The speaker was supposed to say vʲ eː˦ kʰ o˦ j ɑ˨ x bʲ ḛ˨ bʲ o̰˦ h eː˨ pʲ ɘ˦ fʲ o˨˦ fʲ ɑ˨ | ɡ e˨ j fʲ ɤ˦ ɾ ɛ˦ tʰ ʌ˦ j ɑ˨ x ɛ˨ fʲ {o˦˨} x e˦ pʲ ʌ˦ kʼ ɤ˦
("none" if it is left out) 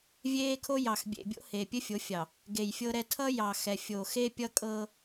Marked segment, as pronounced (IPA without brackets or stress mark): o˨